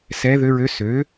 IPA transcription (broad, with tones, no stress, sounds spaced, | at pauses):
s ɛ˧˥ ð ø˧˥ ɹ ø˧˥ s ø˩˥